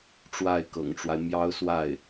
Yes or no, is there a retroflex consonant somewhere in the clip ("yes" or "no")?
yes